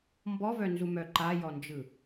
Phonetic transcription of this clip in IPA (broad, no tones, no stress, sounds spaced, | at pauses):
m b ɔ v œ n z u m œ ǃ a j ɔ n d͡ʒ ɯ